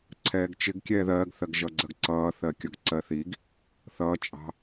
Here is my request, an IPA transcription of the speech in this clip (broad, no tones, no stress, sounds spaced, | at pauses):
ǀʰ ɛː ɡ t͡ʃ ɪ ɡ kʲ ɛː ð ɜː ɡ θ ɜ ɡ ʒ ʌ ɡ͡ǀ ɜ ɡ ǀ ʌː θ ɜ kʲ ʌ ɡ ǀ ɜ θ i ɡ | θ ʌː t͡ʃʼ ɑ̤